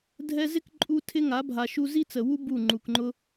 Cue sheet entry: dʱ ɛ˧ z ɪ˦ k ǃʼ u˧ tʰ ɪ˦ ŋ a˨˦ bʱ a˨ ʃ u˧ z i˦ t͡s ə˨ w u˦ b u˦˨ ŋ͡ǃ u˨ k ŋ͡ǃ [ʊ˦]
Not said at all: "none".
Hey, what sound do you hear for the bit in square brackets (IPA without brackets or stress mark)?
ʊ˦